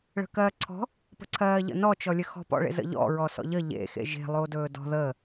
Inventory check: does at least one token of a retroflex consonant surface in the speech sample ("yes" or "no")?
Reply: yes